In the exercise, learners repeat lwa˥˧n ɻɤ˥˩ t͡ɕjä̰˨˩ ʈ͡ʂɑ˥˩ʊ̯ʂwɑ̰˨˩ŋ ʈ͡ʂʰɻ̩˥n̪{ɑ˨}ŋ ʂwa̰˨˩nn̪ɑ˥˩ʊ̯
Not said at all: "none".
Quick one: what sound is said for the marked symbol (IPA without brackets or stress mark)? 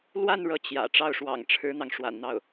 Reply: ɑ˨